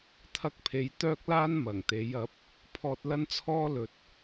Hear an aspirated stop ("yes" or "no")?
yes